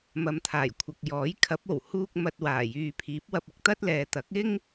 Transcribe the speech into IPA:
m ɐ˨˧ m t̪ʰ aː˨˩ j kʷʰ ɐ˨ k̚ j ɔː˨˥ j kʰ ɐ˨˥ p̚ o˨˩ w h uː˧ k̚ m ɐ˨ t̚ w aː˨˩ j yː˨ pʰ iː˨˥ p̚ w ɐ˧ p̚ ɪ˧ k̚ t̪ ɐ˥ t̚ l ɛː˨ t̪ ɐ˨˥ k̚ ɪ˥ ŋ

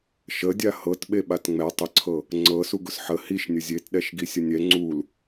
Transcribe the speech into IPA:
ʃ ə dʲ a h ɤ t ɓ e ɓ a t ŋ͡m ɛ tˤ ə ǀʰ ɤ | ŋ͡ǀ ɤ s u ɡ ʊ s ħ ə h i ʃ nʲ ə zʲ e t ɗ ɛ ʃ ɡ i sʲ ə nʲ ɛ ŋ͡ǀ u l

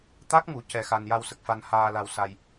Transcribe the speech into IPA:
t̪ a˦˥ k̚ ŋ u˨˩˦ c ɛ˧ x a˧ n j a˧ w s ə˨˩ k̚ f a˧ n h aː˧ l a˧ w s a˧ j

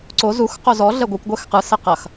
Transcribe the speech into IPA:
ǀ o z u x q o z ɔ ɮ ɛ ɡʷ ɐ kʷ ɡʷ ɛ x q ɯ s ɛ q ɐ x

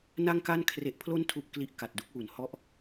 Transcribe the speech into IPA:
n a˥˩ ŋ k a˥˩ n kʰ r e˨˩ ʔ pʰ l o˦˥ n tʰ u˨˩ ʔ k l i˦˥ ʔ k a˨˩ t̚ d u˥˩ k̚ w u˨˩ n h ɔ˦˥ ʔ

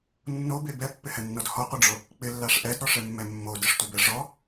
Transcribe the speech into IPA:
nː o b e b ɛ pː ɪ h ɛ nː ɔ d h ɔ qʷ ɪ ɖ͡ʐ o | k͡p ɪ lː a ʂ ʔ ɛ d ɾ ɔ ʂ ɛ mː ɛ mː o d ɪ ʂ tʷ e b ɛ ʐ ɔ

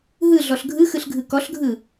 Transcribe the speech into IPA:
ɦ ɯ ɮ ɔ ɬ ɡʱ ɯ x ɯ ɬ ɡʱ ɯ k ɔ ɬ ɡʱ ɯ

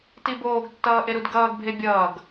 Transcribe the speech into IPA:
t i b oː ɡ tː ʌː ʔ e ɾ u d ɡ ʌː ɡ bʱ e bʲ ʌː ɡ

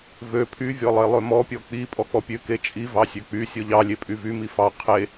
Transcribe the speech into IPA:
v ø pʰ y vʲ ɔ lˠ e lˠ ø m ɔ pʲ ɔ k͡p i pʼ ɔ k͡p ɔ pʲ ø k e t͡ʃʼ i v ɑ sʲ ø k͡p y sʲ ɔ ʎ ɑ lʲ e pʼ y v y m i f ɑ qʰ e

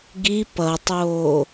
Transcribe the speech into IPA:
ɡ i p ʌ tˤ oː

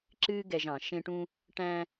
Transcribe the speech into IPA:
ǁ ɨː˥ ɡ ɛ˧ ʒ ɑ̃˩˧ ʃ ẽ˧ ʈ ũ˧ | ʈ æ̃˧

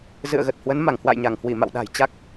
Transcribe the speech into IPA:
z ɨ̰˧˨ ə̯ ɣ ə˨˩ t̚ h w ə˨˦ n m a˧˩ ŋ h w a̰˧˨ j ɲ a˧˩ ŋ h w i˧˩ m a̰˧˨ w ɗ a̤˨˩ j t͡ɕ a˦˥ k̚

